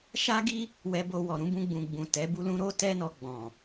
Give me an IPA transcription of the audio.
ʃa˦ɡi˦ | wɛ˧bo˧wɔ˨ ɾũ˨˦bũ˧ɡ͡bũ˨ ɡ͡bũ˨tɛ˨˦bu˦lũ˦ ɾo˦ tɛ˦nɔ˧ɡ͡bɔ̃˨

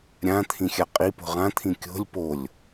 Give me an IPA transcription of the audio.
ɾʲãt̪ʰĩxʲa qʼipo̤ ʁãt̪ʰĩ kʲo̤lʲ polʲ

